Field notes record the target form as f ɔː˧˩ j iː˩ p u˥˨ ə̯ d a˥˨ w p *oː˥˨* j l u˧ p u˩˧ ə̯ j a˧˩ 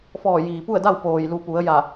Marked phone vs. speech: incorrect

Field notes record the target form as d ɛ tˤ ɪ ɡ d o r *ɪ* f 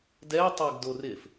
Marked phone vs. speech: correct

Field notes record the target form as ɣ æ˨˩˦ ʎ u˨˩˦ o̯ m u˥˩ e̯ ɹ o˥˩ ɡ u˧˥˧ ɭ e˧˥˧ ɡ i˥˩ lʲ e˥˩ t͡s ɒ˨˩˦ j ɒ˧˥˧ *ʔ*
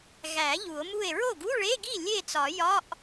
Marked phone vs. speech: correct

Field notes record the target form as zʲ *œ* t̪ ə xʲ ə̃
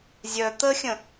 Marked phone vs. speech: correct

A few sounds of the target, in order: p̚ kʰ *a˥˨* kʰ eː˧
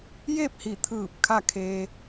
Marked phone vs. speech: correct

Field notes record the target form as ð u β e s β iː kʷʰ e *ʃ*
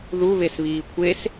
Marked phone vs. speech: incorrect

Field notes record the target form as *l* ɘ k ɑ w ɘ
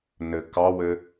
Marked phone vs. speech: incorrect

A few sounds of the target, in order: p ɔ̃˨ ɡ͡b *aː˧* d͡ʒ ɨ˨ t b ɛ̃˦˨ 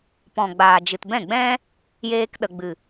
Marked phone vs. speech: incorrect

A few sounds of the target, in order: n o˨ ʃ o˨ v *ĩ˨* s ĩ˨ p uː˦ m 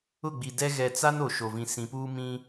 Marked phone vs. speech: correct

